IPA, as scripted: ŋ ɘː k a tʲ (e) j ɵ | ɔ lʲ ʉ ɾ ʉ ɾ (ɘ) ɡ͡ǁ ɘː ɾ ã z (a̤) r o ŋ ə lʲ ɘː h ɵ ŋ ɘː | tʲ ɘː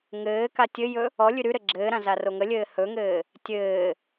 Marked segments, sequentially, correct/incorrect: incorrect, correct, incorrect

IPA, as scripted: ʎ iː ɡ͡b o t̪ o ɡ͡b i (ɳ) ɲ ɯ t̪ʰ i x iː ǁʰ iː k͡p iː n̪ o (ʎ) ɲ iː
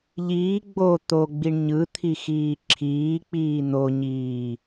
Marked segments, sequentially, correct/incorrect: correct, incorrect

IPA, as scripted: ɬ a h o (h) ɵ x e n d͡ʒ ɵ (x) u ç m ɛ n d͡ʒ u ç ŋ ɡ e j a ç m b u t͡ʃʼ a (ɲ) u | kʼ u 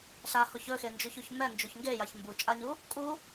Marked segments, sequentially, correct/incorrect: incorrect, incorrect, correct

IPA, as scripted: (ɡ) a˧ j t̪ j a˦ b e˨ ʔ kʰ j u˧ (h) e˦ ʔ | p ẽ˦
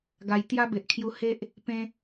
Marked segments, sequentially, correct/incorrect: correct, correct

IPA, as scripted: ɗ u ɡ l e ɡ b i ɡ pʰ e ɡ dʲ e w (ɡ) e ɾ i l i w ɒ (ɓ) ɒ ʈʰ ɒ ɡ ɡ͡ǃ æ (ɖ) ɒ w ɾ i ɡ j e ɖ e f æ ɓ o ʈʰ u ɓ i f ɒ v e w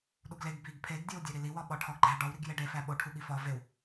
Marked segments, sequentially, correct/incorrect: incorrect, correct, correct

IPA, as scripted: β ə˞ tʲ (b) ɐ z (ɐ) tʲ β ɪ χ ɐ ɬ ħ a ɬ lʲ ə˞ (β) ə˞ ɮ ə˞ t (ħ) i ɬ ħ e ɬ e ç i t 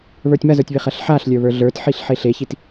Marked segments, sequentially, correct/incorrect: incorrect, incorrect, correct, correct

